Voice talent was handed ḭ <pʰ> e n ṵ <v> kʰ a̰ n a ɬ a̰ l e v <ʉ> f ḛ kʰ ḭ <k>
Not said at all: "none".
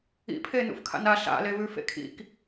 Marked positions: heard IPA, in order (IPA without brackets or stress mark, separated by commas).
pʰ, f, ʉ, k